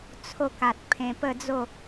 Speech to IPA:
t͡sʰo˧ka˨t̚ pʰẽ˧pə˥˧d͡zo˥˧

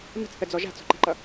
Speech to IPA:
nə̤t͡sθəd͡zɔ ʒa̤t͡sɔ̤ǃɛ̤ǃʌ

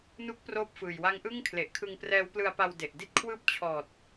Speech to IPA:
nu˦˥k̚ proː˥˩p̚fɯː˨˩j wa˦˥ŋʔɯ˥˩ŋkʰle˨˩ʔ kʰɯ˧ŋprɛː˦˥wplɯ˧a̯pa˧w de˨˩ʔdi˥˩t̚ kʰwɯː˦˥p̚ t͡ɕʰɔː˨˩t̚

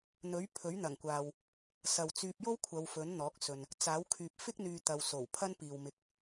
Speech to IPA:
n̪ɵ˨˥ɥ pʰɵ˨˥ɥn̪ɐ˨˩ŋkʷaː˨w | sɐ˨wt͡syː˧p̚jo˥w kʷʰɐ˨˧wfɵ˨˥nn̪ɔː˨˥k̚sɵ˨n | t͡saː˨˥wkʰyː˨p̚ fɪ˥k̚n̪yː˨ t̪ɐ˨wso˨˩wpʰɐ˥n piː˨wmɪ˧k̚

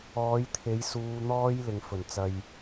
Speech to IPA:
ɔː˨˧jt̪ʰe˨˧j suː˧n̪ɔː˥jlɪ˨ŋ fɵ˨˩nt͡sɐ˧j

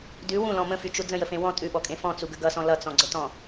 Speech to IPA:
dʉ wũlɔ̃ mə̃fyt͡ʃu d͡zə̃jəfẽ wɔ̃ tʼʉɓɔkʼẽ fɔ̃t͡suɡə ɡʌsɔ̃ lʌt͡sɔ̃ɡ͡ǀətɔ̃

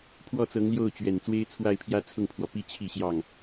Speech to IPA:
pʰwɔ˥˩t͡sɤ˧˥ŋljo˥˩ʊ̯t͡ɕɥɛ˨˩n t͡swe˥ɪ̯t͡sʰwa˥˩ɪ̯pʰjä˥ t͡sʰʊ˥˩ŋpʰwɔ˩pi˥ t͡ɕʰi˥˧ɕjɑ˥˩ŋ

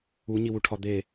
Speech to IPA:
uɲiwuʈʰɒ d̪e

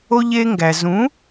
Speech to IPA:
o˧ ʎe˧ŋɡæ˩ zũ˩˥

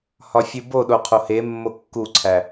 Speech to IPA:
hɒfʲuboɗo qʰohemːo kːuǀʰæ

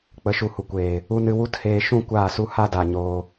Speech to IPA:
k͡pə˨˦ʃu˨hu˨kʷeː˨ | u˧nɨ˧ wu˦theː˧ ʃũ˦˨ kʷaː˦˨su˦ ha˦da˨ ɲoː˧

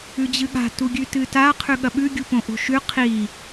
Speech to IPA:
ʉd͡ʑɨɠa̤ tuɡʲʉtɨta qʰʉɠɐɓʉ ɡʲupõʔo̤ʃʉ qʰi

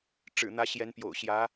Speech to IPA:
ʈ͡ʂɻ̩˨˩n̪ä˧˥ ɕjɛ˧˥npjo̰˨˩ʊ̯ɕjä˧˥

